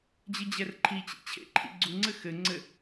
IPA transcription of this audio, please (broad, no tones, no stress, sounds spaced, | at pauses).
d͡ʑ ɨ d͡ʑ ɛ r ǃʰ i t͡ɕ ḭ t͡ɕʰ ḛ ǃʰ ḭ ɡ͡ǀ u ŋ͡ǀ ɘ x ɘ ŋ͡ǀ ɘ